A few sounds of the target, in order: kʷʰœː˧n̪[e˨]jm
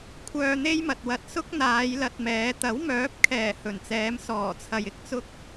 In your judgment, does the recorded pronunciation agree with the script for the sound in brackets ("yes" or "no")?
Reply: no